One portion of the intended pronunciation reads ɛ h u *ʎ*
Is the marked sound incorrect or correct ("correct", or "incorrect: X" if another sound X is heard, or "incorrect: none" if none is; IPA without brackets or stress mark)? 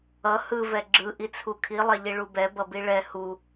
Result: incorrect: none